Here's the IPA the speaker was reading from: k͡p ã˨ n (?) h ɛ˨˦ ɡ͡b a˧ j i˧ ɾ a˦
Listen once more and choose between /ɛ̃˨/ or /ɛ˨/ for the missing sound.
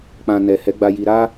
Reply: ɛ˨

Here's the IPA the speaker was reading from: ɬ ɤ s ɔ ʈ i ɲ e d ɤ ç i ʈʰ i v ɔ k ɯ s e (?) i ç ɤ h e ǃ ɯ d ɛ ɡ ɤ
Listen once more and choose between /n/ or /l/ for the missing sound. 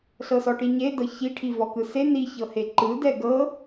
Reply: n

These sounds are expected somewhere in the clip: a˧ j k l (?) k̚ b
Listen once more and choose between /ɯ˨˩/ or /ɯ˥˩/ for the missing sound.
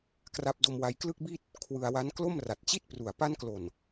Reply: ɯ˥˩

